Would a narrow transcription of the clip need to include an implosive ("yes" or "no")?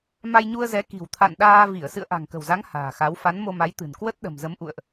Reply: yes